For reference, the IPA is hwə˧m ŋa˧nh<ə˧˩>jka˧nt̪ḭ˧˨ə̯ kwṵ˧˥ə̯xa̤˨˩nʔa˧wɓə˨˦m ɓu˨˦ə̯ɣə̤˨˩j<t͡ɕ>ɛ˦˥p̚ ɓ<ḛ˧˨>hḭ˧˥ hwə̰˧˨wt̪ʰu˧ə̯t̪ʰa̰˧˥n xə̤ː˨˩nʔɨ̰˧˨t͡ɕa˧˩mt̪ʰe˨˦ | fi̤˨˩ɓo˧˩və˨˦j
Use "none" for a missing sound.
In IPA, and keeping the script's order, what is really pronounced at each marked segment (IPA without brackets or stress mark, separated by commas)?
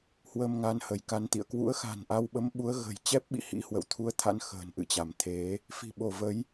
ə˧˩, t͡ɕ, ḭ˧˨